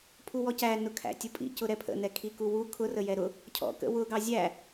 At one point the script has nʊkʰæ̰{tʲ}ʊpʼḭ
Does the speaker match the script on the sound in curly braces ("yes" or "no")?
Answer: yes